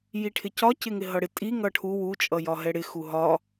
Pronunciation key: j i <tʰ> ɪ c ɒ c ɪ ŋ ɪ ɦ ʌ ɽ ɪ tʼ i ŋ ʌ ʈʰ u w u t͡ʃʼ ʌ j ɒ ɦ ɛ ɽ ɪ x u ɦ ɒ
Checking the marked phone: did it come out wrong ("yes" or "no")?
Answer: yes